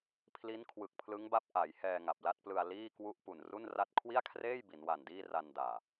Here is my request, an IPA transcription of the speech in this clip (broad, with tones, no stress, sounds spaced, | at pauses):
pʰ l i˦˥ n kʰ w ɯ˨˩ k̚ pʰ l ɯ˦˥ ŋ b a˦˥ p̚ ʔ a˩˦ j h ɛː˧ ŋ a˨˩ p̚ l a˥˩ t̚ p l ɯ˧ a̯ l iː˥˩ k w u˥˩ ʔ p u˨˩ n r u˥˩ n r a˥˩ t̚ kʰ w i˥˩ a̯ kʰ r eː˥˩ j b i˩˦ n w a˨˩ n d iː˥˩ r a˧ n d aː˨˩